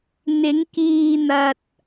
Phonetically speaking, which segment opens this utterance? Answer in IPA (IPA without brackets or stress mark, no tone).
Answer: n̪